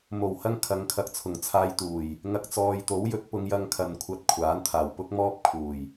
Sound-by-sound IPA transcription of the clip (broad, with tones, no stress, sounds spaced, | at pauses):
m o˨˩ w h ɐ˥ ŋ kʰ ɐ˧ ŋ kʰ ɐ˨ k̚ t͡sʰ ʊ˨˩ ŋ t͡sʰ aː˧ j t̪ uː˨˩ j | ŋ ɐ˧ k̚ t͡s ɔː˨ j t̪ o˨˥ w j ɵ˨˥ t̚ p ʊ˨˧ ŋ j ɐ˧ ŋ kʰ ɐ˨ n kʷʰ ɐ˧ t̚ kʷʰ aː˨˥ n t̪ʰ aː˨˩ w p ʊ˥ k̚ m ɔː˥ p̚ kʰ uː˨˩ j